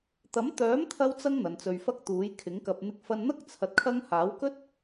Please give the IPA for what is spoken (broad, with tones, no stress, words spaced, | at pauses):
t̪ɐ˨˥mt̪œː˨˥mt̪ʰɐ˧wt͡sɐ˧ŋ n̪ɐ˨˧nt͡sɵ˧ɥfɐ˥k̚ t̪uː˨˥jkʰɪ˨˥ŋkɐ˧p̚ n̪ɪ˧k̚fɐ˧nn̪ɐ˥k̚ t͡sʰɐ˧t̚kʰɐ˥ŋ haː˨˥wkɵ˥t̚